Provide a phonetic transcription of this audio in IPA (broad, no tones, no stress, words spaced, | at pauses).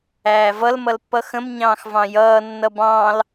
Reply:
æːvʌl mʌlpːʌxə̃m ɲɑ̃ːxvɑ̃jʌː nːʌbɑ̃ːl